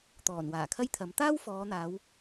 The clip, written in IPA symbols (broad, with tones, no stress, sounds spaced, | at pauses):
t̪ ɔː˨˩ n w aː˨˩ kʰ ɐ˥ j t̪ʰ ɐ˨˥ m t̪ aː˥ w f ɔː˨˧ n̪ aː˨˧ w